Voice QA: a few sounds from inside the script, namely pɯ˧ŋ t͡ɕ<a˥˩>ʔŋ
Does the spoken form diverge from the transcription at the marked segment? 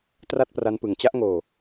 yes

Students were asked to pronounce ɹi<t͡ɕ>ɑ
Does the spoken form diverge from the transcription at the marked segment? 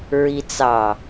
yes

